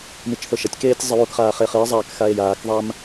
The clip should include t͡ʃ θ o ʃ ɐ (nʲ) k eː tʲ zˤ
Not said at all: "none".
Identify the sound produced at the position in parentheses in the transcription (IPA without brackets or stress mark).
tʲ